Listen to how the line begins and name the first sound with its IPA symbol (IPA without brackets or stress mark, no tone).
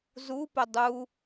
z